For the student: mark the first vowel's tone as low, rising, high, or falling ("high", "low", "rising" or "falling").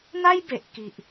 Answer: high